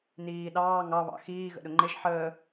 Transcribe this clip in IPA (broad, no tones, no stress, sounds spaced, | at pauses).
n iː ɗ ɑː ŋ ɑ β ɑ̰ x iː ɣ ə̰ ɗ ʊ ŋ͡ǃ ɪ ʒ ħ əː